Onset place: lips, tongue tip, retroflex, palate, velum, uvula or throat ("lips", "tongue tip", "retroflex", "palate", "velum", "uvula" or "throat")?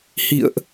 throat